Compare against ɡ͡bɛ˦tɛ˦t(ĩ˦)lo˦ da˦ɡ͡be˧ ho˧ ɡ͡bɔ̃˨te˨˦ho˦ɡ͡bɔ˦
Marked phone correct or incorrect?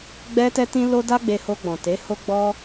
correct